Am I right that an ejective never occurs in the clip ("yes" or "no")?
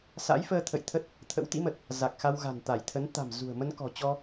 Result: yes